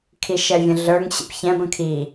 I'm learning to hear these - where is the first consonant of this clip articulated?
velum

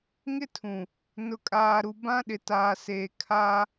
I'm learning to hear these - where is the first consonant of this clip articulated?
velum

